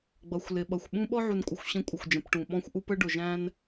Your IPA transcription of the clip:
ɡ͡b ʌ˨ xʷ l ɪ˨ ɓ ʌ˨ xʷ ɓ ũ˦ ɓ ɔ˦ ʕ u˨ n kʷʼ ə˨ xʷ ɕ ə̃˦ kʷʼ ə˨ xʷ d͡ʒ ə̃˨ p ʈ ũ˨ ɓ ɔ̃˦ xʷ ʔ u˦ p ə˦ ɖ ʊ˨ ʒ æ̃˦ n

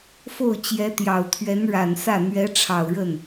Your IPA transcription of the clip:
f o˥˩ ʊ̯ t͡ɕ j ɛ˧˥ t̪ j ɑ˨˩ ʊ̯ t̪ʰ ɥ ɛ˧˥ n ɻ a˨˩ n s ä˥˩ n̪ ɥ ɛ˧˥ ʈ͡ʂʰ ɑ˨˩ ʊ̯ ɻ ə˥˩ n

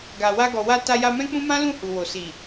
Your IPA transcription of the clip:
ɡ a˨ w a˧ ɡ ɔ˨ w a˧ t a˧ j a˧ m ɛ̃˦ k͡p ũ˦ m ã˦ l ũ˦˨ h u˨ w o˨ s i˨

